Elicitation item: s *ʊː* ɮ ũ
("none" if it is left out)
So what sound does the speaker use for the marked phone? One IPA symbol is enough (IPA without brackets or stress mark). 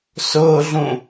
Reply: ʊː